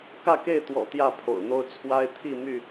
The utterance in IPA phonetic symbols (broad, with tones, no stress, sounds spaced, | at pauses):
k ä˥˨ k e˥˨ ɪ̯ t̪ w ɔ̰˨˩ t̪ j ä˥˨ pʰ o̰˨˩ ʊ̯ n̪ o˦ ʊ̯ t͡sʰ w a˦ ɪ̯ t̪ʰ i˥˨ m y˥˨